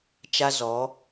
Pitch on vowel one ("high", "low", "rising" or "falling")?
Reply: high